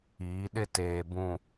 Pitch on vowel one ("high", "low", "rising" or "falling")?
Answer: rising